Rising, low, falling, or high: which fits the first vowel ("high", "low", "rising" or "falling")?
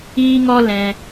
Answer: high